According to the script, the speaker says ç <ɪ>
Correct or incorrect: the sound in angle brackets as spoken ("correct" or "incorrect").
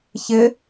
correct